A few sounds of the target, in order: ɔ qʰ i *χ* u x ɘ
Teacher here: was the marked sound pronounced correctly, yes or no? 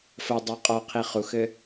yes